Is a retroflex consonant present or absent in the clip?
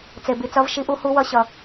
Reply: absent